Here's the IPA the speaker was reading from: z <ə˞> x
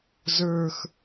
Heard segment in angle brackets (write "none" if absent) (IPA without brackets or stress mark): ə˞